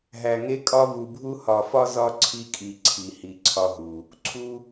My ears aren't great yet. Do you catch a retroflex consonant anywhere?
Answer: no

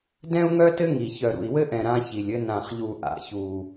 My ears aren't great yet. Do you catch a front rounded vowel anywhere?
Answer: yes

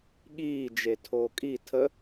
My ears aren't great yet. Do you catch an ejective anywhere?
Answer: yes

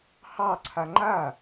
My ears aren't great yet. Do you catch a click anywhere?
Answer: yes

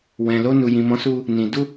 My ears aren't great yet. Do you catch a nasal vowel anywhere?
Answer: yes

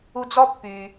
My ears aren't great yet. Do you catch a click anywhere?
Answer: no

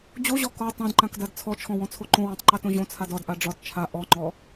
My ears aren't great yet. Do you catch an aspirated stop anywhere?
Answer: yes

